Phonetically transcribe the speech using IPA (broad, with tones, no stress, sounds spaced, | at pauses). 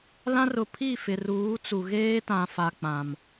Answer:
l ã˦ r ʊ˨ pʰ i˦˨ f ɪ˨ r uː˨˦ t͡s u˨ ɣ eː˦ t ã˨ f a˨ k͡p ã˨ m